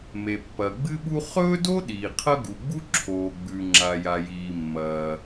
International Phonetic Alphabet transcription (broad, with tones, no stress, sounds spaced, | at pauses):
m e˩ pː ɐ˩ ɡ͡b ɨ˥ ɓ u˥ χ ɵː˥ d o˥ ɗ iː˩ qʰ ɐ˥ ɡ u˩ ɡ͡b u˥ ǁʰ oː˩ ɡ͡b ʉ˩ ŋ͡ǁ a˩ j a˩ j iː˩ mː ɐː˩